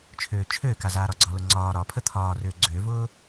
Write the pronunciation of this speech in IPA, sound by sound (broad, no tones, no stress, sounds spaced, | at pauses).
t͡ʃʰ øː t͡ʃʰ øː k a z aː ɾ ɒ ɡ͡ǀ ɒ l ʊ ŋ͡ǀ ɒː ɾ ɒ pʰ ə t̪ʰ ɒː r øː ɡ͡ǀ ø v ʊː